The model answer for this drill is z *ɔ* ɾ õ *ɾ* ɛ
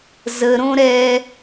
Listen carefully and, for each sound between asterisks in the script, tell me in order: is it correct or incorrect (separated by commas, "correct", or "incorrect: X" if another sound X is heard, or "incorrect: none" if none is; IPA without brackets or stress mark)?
incorrect: ə, correct